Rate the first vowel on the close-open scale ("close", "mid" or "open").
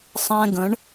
mid